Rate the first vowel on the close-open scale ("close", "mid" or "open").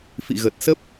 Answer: close